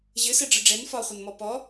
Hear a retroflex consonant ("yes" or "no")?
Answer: yes